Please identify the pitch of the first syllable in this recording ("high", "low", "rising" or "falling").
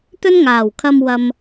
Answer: high